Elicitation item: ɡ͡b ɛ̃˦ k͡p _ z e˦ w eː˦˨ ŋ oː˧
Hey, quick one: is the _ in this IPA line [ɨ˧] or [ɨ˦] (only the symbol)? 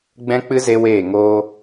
ɨ˦